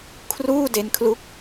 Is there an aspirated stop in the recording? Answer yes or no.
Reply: yes